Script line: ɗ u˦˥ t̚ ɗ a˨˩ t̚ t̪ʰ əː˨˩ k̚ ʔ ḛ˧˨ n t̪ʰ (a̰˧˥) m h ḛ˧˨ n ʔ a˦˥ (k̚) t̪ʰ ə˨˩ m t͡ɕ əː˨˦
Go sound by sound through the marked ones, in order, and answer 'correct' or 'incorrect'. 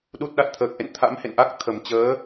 correct, correct

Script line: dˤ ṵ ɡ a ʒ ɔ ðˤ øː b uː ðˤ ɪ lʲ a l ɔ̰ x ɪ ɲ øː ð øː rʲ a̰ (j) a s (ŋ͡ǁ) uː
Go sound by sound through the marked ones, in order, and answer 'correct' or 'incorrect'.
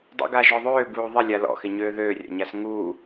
incorrect, incorrect

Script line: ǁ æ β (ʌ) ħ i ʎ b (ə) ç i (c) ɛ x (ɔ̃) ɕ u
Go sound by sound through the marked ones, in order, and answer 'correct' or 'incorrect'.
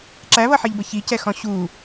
correct, correct, correct, correct

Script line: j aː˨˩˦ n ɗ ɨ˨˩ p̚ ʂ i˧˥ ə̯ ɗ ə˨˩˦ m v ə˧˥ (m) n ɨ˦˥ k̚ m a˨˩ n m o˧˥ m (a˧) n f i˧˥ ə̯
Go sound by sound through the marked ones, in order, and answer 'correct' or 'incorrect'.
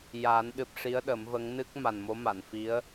incorrect, incorrect

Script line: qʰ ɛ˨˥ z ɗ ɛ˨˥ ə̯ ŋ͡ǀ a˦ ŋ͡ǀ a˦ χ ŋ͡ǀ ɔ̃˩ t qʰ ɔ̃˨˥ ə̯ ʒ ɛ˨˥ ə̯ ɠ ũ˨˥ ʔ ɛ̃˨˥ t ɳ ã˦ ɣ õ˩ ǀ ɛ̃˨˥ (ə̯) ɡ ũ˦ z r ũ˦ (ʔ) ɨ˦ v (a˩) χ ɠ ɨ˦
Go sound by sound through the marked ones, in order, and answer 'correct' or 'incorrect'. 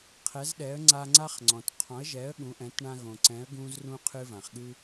correct, incorrect, incorrect

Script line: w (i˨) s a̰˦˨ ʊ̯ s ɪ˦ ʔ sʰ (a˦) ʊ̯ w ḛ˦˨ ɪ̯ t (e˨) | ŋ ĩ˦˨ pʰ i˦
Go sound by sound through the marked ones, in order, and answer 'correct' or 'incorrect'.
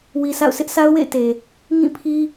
correct, correct, correct

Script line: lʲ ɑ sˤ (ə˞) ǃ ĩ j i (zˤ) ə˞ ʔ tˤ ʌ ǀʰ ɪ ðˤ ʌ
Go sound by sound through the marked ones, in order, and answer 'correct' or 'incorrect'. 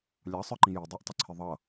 correct, incorrect

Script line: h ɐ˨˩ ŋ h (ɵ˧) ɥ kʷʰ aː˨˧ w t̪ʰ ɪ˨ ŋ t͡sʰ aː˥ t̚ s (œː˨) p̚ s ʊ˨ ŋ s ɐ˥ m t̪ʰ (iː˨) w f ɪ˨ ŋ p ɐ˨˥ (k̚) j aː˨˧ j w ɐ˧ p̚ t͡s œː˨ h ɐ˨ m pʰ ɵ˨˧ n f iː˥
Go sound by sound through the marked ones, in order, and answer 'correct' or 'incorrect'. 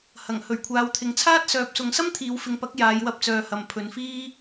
incorrect, correct, incorrect, correct

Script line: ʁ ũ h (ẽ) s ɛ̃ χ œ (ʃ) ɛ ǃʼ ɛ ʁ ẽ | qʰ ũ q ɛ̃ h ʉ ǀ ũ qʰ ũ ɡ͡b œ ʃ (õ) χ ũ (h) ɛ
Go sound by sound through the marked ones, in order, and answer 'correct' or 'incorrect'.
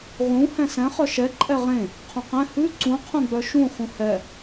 incorrect, correct, incorrect, correct

